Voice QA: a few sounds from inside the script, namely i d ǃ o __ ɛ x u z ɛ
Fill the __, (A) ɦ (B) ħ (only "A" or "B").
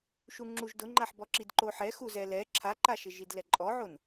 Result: B